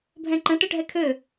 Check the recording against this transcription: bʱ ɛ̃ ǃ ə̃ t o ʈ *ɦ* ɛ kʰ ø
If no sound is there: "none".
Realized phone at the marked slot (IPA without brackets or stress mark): ɦ